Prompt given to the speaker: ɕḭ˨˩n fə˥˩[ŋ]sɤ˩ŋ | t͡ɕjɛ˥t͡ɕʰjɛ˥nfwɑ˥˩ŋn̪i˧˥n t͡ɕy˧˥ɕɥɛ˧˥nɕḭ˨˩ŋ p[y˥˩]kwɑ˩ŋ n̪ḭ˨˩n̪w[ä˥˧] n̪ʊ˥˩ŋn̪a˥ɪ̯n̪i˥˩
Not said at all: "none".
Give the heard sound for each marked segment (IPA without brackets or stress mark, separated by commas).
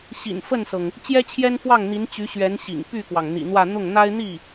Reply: n, y˥˩, ä˥˧